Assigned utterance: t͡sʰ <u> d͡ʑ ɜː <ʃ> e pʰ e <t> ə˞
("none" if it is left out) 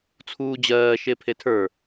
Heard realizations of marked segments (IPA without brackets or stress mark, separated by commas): uː, ʃ, tʰ